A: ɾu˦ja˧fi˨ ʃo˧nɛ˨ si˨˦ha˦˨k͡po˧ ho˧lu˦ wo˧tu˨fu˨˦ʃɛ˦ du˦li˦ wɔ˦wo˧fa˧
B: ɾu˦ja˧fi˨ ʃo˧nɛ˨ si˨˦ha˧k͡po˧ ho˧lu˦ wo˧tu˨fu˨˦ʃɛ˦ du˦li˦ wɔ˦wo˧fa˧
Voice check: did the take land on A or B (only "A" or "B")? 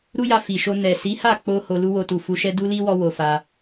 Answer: A